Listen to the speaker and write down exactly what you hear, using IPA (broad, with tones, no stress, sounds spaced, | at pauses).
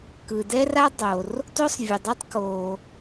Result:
k ɯ˩ d ɛ˥ r a˥ dˤ o˩ r | t o˥ sˤ vʲ ɯ˩ dˤ u˥ tˤ k o˩